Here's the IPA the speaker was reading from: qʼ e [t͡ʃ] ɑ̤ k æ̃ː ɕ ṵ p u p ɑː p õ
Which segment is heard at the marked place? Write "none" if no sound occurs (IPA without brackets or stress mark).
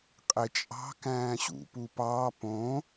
t͡ʃʼ